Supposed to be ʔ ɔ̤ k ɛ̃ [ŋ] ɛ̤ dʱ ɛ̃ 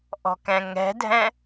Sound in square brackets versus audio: correct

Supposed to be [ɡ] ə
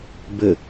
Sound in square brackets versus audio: incorrect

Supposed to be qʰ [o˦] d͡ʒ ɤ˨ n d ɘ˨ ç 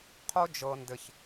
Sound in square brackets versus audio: correct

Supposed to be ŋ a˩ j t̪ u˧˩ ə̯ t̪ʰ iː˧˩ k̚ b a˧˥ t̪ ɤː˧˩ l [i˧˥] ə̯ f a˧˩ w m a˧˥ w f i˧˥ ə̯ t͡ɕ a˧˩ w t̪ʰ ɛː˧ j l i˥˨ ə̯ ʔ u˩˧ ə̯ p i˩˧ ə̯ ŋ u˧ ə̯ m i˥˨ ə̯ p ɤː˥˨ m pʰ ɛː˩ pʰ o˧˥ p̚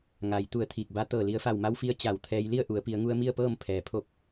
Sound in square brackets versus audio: incorrect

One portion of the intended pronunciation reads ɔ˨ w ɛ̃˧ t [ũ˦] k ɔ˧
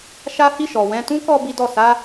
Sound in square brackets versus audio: correct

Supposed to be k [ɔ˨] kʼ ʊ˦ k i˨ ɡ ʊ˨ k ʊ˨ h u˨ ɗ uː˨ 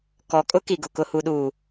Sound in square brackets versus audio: correct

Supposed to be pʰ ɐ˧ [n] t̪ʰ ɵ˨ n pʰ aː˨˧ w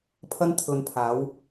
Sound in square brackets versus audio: correct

